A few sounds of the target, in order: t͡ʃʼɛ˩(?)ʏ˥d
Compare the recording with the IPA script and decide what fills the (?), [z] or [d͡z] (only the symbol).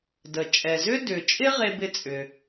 z